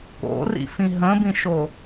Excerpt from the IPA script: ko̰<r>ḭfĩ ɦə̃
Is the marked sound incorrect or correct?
correct